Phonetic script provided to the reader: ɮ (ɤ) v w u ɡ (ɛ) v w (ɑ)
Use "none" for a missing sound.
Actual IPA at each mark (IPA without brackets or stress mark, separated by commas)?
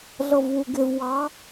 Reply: ɤ, ɪ, ɑ